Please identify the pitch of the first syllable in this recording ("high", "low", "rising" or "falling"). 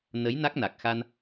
rising